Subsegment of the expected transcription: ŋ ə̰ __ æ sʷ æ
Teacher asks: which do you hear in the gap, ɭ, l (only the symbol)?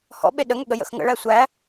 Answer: ɭ